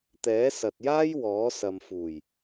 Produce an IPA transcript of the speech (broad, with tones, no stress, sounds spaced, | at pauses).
t̪ ɛː˨˥ s ɐ˨ t̚ j aː˥ j w ɔː˨˥ s ɐ˨ m f uː˨˩ j